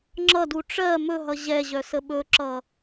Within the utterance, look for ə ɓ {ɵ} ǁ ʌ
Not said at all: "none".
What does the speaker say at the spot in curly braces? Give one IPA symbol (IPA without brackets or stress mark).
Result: ɵ